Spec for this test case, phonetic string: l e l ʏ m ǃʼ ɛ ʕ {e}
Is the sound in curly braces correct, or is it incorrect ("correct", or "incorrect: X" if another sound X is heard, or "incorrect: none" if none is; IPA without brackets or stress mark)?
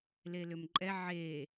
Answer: correct